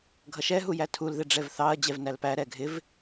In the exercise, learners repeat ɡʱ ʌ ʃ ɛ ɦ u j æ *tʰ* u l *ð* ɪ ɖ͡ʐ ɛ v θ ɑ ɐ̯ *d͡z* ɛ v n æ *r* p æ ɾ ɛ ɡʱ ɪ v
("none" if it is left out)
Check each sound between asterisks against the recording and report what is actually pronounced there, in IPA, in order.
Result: tʰ, ð, d͡ʑ, l

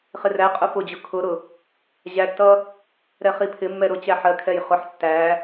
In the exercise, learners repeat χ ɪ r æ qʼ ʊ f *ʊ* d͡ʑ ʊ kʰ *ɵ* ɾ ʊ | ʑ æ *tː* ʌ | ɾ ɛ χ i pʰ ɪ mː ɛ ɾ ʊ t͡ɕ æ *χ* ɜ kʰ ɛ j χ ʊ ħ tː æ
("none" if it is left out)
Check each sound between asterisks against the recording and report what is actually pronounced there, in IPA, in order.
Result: ʊ, ʊ, tː, ħ

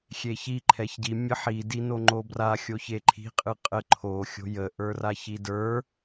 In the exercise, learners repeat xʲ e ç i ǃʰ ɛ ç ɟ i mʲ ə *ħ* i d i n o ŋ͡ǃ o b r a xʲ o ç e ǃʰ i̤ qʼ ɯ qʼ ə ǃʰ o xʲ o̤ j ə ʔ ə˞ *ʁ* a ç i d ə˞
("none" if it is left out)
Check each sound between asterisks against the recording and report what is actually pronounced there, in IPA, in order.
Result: ħ, r

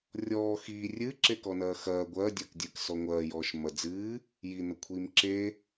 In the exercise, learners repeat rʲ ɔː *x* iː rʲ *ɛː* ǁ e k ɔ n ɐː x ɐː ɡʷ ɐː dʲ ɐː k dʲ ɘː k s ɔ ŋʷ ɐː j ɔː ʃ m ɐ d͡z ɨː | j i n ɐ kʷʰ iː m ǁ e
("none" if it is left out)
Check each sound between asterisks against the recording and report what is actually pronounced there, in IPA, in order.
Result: x, ɨː

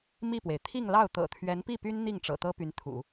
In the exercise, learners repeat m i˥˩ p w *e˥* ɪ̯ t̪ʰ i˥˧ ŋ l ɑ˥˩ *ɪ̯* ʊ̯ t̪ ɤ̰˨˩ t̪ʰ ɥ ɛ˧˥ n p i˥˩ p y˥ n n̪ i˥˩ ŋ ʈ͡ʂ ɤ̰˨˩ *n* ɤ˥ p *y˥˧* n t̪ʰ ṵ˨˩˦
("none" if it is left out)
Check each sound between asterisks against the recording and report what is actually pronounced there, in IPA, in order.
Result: e˩, none, t̪, y˧˥

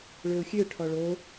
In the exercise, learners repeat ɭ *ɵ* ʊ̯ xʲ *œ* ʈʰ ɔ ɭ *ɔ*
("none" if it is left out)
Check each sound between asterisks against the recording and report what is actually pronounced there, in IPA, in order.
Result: ø, ø, o

